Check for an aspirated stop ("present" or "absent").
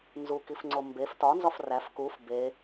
absent